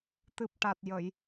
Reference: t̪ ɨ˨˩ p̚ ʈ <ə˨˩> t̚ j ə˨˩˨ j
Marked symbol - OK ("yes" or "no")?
no